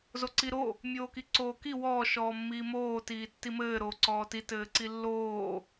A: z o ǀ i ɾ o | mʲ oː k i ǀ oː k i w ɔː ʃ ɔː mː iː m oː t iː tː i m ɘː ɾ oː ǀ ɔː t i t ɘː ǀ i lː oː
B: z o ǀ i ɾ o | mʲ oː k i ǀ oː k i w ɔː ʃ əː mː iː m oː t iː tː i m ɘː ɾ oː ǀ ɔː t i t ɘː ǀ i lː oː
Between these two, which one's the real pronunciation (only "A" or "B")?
A